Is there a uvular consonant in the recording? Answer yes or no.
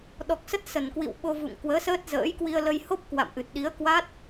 no